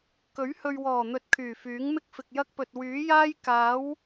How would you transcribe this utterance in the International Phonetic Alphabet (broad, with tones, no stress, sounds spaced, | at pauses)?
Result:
k ɵ˨˥ ɥ h ɵ˨ ɥ w ɔː˨˩ n̪ ɵ˨ t̚ kʰ yː˨˩ f yː˨˥ ŋ m ɪ˥ k̚ f ɪ˨ k̚ j ɐ˥ k̚ p ɵ˨ t̚ w yː˨˥ j aː˥ j k aː˨˥ w